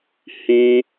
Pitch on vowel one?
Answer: high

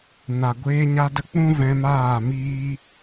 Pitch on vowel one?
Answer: low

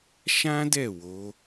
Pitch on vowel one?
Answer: high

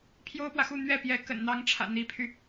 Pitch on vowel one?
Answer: high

